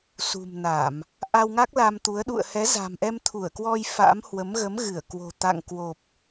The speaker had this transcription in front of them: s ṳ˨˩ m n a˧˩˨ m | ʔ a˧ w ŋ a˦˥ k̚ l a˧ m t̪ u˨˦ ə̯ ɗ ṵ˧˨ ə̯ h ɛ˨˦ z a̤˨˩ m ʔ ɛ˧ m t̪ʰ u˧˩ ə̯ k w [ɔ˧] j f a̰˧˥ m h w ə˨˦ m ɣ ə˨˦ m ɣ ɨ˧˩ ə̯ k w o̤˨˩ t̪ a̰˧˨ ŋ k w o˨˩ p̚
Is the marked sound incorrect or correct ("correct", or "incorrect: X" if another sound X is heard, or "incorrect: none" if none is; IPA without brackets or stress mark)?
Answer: correct